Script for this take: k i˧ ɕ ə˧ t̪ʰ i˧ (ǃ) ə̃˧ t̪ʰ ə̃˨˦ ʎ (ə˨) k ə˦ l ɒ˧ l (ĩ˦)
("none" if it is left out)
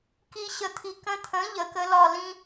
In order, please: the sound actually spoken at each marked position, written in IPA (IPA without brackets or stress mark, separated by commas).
k, ə˨, ĩ˦